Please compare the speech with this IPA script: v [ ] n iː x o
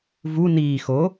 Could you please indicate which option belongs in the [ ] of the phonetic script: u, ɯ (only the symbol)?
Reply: u